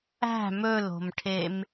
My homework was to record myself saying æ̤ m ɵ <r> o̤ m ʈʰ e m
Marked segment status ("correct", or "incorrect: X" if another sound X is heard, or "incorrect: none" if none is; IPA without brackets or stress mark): incorrect: l